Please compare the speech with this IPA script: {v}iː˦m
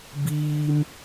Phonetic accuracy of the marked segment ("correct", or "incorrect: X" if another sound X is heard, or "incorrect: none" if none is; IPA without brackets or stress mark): incorrect: b